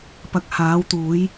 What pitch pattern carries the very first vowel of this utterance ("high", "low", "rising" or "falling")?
low